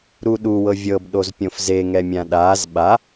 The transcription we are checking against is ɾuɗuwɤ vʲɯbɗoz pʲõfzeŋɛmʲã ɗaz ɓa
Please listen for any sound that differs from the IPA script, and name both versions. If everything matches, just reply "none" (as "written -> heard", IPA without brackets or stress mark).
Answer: ɯ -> ɤ